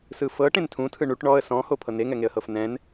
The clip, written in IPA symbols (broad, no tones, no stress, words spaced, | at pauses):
sɯfɤ ʈẽntʰũtʰɯ ɳuʈ ɳɔə̯ sɔ̃ho pʰɤneŋɛŋeə̯ hɤfnɛ̃n